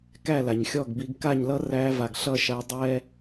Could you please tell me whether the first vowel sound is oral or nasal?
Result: oral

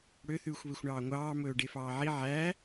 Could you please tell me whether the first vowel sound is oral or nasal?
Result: oral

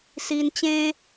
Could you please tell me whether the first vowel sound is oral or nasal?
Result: oral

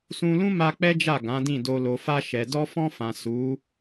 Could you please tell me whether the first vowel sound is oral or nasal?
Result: nasal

